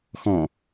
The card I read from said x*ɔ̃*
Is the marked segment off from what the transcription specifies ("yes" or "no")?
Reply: no